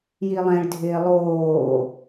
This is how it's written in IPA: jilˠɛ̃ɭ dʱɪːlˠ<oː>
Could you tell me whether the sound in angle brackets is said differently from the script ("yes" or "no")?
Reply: no